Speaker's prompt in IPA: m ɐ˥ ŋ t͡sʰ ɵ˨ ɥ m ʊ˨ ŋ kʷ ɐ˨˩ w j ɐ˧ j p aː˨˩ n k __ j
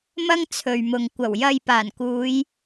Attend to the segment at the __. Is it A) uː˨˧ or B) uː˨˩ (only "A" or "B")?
A